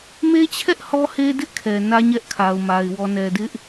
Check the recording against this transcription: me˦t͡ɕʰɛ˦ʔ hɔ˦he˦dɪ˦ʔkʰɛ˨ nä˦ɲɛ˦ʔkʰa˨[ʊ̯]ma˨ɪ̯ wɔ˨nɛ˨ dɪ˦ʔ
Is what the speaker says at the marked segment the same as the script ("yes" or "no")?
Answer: yes